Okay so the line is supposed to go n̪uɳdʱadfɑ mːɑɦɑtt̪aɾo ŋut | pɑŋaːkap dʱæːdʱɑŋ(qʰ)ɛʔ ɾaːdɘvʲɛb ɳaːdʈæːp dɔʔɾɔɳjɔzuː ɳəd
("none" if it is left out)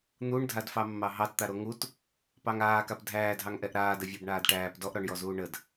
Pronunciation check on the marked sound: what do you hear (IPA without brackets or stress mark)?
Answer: ʔ